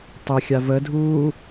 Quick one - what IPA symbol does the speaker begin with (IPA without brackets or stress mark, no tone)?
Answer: tˤ